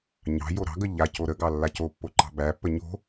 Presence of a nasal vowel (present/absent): absent